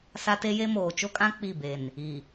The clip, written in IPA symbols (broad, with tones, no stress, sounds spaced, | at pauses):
s a˦ t e˦ j e˦ m oː˨ t͡ʃ o˦ kʼ ã˦ k͡p i˦˨ b e˨ n | i˨